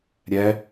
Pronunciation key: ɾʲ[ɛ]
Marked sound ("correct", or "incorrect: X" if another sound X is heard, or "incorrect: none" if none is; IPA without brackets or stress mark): correct